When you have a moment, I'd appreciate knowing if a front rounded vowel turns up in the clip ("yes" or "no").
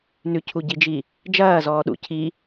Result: no